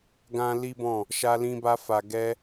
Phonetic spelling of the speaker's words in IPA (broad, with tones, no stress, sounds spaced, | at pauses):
ɡ ã˦ l i˦ b ɔ̃˦˨ | ʃ a˧ l ĩ˧ b a˧ f a˨ ɡ ɛ˧